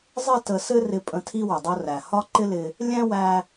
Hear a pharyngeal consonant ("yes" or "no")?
no